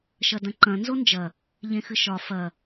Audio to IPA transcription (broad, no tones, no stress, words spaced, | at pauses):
ʃɐdɐ̃ǃɐ̃ nzond͡ʒɐ | ʎẽxɨʃɒ fɐ